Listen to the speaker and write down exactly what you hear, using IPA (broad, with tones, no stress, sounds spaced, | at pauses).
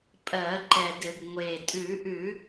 pʼ ɜ˧˩˧ ǃ ɛ˨˩ d ɘ˧˩˧ ɡ ŋʷ e˨˩ tʼ ʉ˧˩˧ ʔ ʉ˧˩˧